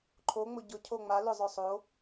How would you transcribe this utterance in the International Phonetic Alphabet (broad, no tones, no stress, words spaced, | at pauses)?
ǃʰo ŋ͡mʊɟʊ cʰoŋ͡ma lʊ zˤœsˤo